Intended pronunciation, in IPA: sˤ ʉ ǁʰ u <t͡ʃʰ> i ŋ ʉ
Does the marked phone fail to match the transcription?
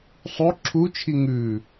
no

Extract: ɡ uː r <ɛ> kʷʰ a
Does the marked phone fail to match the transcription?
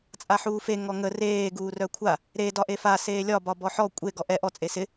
yes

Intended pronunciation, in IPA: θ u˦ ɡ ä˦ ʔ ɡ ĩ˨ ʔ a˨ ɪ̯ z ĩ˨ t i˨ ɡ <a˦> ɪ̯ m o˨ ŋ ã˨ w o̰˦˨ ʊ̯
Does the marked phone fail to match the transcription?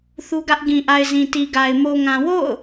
yes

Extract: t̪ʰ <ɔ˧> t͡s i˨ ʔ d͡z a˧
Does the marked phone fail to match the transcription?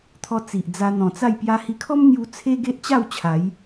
no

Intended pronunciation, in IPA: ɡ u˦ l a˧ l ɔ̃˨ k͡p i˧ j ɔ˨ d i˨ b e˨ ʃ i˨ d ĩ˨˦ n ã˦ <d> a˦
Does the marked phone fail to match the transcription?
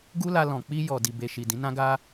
yes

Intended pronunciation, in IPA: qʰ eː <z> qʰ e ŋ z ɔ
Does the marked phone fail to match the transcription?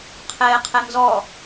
yes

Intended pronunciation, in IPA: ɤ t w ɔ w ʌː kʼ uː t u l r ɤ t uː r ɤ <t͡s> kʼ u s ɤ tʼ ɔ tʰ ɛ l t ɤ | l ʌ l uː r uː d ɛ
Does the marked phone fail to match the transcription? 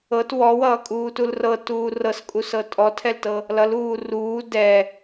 yes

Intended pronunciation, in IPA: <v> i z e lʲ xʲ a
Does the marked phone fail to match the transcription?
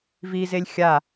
no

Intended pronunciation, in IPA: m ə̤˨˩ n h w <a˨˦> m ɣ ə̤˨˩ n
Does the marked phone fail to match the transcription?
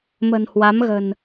no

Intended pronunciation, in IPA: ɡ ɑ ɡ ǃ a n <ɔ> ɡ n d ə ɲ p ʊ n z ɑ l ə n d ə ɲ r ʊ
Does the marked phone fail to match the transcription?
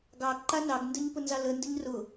yes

